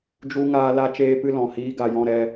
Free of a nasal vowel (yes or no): no